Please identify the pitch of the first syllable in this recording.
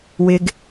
low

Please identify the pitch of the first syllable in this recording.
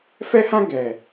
high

